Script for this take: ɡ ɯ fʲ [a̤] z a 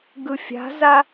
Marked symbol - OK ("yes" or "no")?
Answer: yes